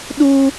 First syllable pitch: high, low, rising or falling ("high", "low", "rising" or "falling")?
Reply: high